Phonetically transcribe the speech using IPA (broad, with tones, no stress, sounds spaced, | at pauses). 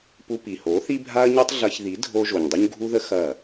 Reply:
p u˧ p i˨ h o˨˦ θ i˦ bʱ a˦ ɐ̯ ɲ u˦ tˤ ɮ ɐ˧ ç ð i˨˦ dʱ o˧ ʒ o˨ ɲ dˤ u˦ ɲ ɡʱ u˦ ð ə˦ x ɐ˦˨